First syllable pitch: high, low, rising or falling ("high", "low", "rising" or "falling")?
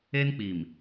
high